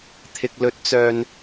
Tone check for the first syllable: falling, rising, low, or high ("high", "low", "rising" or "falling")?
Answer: low